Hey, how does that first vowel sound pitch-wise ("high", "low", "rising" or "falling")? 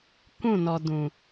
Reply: falling